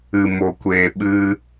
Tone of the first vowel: low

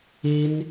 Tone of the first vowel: high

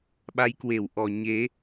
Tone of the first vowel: rising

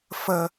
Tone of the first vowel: low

